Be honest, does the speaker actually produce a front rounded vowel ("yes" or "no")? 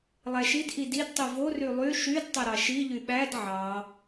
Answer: yes